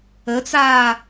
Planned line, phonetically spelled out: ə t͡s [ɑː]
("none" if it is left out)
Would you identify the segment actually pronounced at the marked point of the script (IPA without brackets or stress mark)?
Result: aː